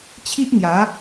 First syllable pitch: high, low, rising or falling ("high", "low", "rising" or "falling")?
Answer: high